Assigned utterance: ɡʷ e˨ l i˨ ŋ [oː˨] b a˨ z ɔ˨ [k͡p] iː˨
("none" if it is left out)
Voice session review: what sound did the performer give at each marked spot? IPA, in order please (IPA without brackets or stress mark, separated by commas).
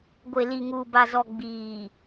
uː˨, ɡ͡b